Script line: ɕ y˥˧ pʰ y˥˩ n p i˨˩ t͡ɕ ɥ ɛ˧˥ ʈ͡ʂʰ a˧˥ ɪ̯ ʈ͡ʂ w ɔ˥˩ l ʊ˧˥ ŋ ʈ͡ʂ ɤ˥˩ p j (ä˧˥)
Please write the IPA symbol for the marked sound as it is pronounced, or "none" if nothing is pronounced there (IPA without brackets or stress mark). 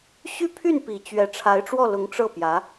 ä˧˥